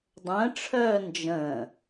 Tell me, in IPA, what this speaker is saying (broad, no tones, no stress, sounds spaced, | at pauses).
dˤ ə̃ː ʈ͡ʂʰ œː n d͡ʒ ə̃ː